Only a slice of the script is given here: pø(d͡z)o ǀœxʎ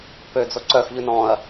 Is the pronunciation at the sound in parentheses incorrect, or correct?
correct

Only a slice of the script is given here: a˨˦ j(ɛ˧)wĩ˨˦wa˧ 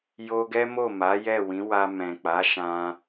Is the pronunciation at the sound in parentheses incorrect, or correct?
incorrect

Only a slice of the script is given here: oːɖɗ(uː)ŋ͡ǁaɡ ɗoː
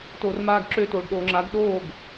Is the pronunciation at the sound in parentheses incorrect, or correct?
incorrect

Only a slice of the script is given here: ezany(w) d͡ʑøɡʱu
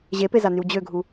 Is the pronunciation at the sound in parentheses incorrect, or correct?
correct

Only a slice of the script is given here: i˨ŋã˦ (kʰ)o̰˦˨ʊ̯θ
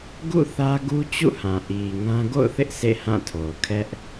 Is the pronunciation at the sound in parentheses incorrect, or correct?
incorrect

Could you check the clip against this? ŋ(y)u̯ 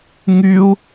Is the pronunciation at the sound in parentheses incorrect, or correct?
correct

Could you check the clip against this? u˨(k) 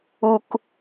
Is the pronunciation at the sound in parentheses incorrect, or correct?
correct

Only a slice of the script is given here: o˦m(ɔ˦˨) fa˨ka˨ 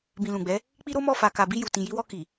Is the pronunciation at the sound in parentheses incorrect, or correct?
correct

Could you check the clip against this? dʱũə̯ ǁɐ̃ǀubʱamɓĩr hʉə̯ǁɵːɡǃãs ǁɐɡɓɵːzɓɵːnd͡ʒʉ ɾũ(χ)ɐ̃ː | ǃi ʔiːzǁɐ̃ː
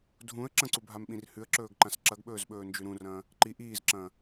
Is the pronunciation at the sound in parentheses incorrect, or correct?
incorrect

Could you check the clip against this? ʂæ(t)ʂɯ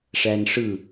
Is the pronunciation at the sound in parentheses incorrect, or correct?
incorrect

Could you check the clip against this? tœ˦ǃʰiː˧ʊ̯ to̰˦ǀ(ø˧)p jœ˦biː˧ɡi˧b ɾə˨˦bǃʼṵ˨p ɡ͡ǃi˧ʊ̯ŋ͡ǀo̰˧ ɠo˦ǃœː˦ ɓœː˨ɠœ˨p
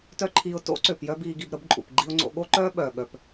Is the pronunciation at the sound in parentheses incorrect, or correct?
incorrect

